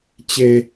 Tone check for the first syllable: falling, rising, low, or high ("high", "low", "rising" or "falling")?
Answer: high